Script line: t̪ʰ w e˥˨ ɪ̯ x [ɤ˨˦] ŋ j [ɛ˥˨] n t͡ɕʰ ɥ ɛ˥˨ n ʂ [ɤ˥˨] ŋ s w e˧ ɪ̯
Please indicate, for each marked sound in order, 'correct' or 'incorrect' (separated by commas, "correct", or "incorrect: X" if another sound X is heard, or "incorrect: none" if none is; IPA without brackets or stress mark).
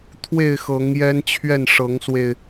correct, incorrect: ɛ˦, incorrect: ɤ˨˦